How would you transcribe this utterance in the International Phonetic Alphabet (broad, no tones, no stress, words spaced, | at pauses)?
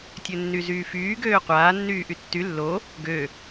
tʲønːyzyːfyː ɡøːqʷaːnːyː ʔytːy lːo | ɡø